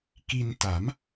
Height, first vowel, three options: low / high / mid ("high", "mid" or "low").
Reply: high